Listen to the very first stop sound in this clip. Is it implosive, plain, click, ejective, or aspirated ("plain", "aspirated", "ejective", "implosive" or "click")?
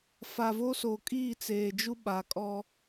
ejective